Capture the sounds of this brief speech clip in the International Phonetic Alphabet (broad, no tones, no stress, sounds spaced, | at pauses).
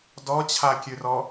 d ɔ t͡ɕʰ a kʲ ʉ r ɔ